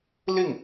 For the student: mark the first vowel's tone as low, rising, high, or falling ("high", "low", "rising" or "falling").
falling